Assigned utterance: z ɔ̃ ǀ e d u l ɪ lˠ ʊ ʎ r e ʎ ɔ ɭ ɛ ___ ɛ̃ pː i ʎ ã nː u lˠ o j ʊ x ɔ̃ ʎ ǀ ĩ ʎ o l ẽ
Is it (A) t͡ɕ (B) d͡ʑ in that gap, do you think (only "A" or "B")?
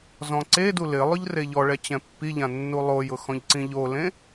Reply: A